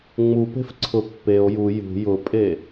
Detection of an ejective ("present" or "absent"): present